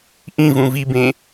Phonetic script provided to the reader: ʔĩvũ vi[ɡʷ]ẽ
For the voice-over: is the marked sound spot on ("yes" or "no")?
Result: no